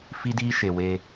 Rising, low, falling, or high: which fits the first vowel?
high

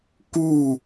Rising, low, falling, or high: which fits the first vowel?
falling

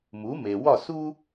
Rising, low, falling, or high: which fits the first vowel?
rising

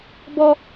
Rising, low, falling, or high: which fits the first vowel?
high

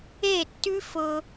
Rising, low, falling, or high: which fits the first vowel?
falling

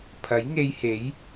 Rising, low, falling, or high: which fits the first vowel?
rising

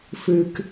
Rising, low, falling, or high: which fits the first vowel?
low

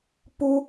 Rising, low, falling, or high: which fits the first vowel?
high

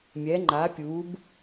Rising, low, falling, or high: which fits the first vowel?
rising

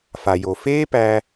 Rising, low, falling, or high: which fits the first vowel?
low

